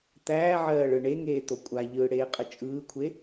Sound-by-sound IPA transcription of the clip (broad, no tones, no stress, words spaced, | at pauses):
t̪æːʕɜː ɭɯɳeŋeː t̪okʷʼaʎɯː ɽeːqʼət͡ʃʼɯːkʷʰe